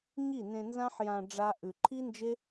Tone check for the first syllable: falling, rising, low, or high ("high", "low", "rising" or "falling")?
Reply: falling